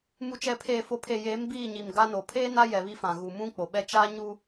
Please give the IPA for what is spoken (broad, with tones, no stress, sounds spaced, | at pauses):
m u˨ t͡ʃ ɛ˨ pʰ eː˨ f o˨ pʰ e˨ j eː˨˦ m b iː˦˨ ɲ i˨ m ɡ a˦ n o˨ pʰ eː˦ n a˦ j ɛ˨ β i˦ f ã˨ ɣ u˨ m ũ˦ k͡p o˨ ɓ ɛ˦ t͡ʃ a˦ ɲ u˦